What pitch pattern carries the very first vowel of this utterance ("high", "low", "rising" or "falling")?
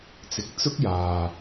low